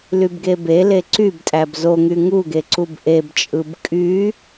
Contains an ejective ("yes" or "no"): yes